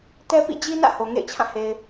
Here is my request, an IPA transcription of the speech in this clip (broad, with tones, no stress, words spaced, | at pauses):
tɛ˦pḭ˦˨ d͡ʑi˦nä̰˦˨ ho˨ŋḛ˦˨ɪ̯t͡ɕʰã˦˨he˨ɪ̯